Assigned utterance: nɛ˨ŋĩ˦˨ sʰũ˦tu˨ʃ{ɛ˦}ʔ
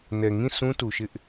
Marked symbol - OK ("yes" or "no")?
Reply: no